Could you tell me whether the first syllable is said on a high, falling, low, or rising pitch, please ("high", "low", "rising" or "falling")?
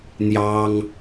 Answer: high